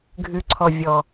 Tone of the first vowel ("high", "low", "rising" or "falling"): low